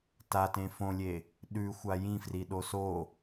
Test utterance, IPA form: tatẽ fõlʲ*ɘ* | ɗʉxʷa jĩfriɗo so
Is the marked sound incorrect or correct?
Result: incorrect